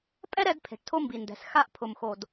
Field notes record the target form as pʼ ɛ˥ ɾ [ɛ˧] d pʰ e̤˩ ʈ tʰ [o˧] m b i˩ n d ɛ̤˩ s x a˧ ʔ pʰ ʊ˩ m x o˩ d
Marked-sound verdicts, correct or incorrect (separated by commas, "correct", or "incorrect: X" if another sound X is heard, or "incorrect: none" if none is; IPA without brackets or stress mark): correct, correct